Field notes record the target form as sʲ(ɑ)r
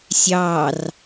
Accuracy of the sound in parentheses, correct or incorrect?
correct